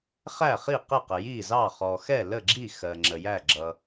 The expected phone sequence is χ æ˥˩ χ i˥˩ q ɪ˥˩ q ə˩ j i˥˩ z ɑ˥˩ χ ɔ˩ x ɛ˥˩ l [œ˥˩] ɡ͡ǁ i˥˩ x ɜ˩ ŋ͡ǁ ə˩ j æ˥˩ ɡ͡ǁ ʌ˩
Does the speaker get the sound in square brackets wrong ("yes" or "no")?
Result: yes